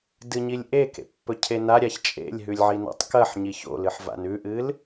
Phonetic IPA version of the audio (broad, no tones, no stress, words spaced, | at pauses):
dɨɲilʲʔe kḛpːɵcʰena ɾʲaçt͡ʃʼḛlʲ ɦʉlʲʕina̰tˤkɐħ ɲiço̰lɨħva̰n ʉʔɨl